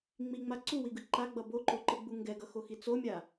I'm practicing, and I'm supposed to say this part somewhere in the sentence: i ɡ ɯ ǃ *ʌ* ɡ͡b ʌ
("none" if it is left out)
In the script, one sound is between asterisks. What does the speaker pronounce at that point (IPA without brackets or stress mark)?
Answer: a